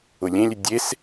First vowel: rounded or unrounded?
rounded